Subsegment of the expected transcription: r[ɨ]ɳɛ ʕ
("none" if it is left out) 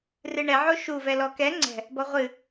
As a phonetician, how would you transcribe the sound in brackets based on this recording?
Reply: ɨ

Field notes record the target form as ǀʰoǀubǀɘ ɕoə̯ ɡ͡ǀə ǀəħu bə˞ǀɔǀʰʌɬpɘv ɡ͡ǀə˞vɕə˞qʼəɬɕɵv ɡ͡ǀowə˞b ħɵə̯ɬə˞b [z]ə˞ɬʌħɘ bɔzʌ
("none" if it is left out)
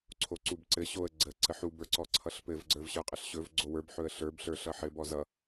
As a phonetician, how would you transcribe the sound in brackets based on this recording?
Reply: ɬ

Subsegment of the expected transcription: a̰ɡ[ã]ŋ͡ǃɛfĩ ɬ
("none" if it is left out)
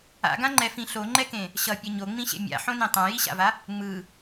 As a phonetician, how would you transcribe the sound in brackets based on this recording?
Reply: ã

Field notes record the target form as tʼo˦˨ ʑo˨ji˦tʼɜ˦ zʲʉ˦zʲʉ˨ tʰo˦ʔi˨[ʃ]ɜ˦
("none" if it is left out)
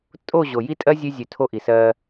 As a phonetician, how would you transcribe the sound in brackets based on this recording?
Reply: s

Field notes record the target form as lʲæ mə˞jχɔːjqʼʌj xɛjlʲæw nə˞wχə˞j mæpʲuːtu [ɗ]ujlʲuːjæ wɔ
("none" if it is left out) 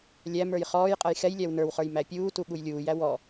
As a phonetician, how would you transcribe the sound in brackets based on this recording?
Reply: ɠ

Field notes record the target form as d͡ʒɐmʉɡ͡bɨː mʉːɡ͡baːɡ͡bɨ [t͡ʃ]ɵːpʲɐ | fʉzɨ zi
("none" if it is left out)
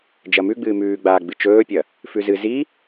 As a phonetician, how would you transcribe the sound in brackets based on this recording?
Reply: t͡ʃ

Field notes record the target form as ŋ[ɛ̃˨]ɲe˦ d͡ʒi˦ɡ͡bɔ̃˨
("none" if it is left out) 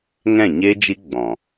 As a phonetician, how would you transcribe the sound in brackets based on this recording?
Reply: ɛ̃˦˨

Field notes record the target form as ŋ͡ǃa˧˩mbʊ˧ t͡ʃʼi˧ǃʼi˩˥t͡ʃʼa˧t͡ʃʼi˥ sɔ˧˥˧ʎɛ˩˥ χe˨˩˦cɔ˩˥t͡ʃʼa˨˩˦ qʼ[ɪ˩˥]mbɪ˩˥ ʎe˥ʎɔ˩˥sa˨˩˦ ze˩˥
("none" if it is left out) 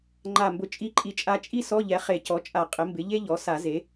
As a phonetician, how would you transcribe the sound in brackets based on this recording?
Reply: ɪ˩˥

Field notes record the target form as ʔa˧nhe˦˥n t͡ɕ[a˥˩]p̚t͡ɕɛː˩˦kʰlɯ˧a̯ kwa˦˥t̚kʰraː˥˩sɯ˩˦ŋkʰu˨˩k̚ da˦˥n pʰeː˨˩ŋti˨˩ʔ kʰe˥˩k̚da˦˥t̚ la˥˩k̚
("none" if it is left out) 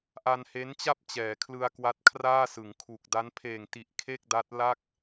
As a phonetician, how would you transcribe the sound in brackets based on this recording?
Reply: a˥˩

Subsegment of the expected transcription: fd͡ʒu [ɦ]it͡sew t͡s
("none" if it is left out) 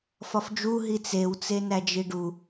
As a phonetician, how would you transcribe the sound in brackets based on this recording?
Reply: ɦ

